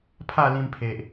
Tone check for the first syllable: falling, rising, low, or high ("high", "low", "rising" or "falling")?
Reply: falling